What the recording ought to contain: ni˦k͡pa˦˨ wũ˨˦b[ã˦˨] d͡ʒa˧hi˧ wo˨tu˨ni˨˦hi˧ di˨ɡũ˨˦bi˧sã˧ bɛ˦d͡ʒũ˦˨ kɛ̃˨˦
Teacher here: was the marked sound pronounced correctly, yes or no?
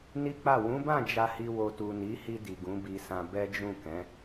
yes